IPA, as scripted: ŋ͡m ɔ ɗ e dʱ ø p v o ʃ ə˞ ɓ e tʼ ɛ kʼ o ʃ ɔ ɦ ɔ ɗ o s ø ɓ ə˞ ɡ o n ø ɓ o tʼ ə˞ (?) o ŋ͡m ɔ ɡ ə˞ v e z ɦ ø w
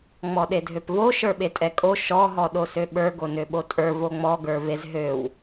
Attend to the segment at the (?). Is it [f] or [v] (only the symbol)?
v